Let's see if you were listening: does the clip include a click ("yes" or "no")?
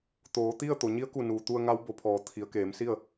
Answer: no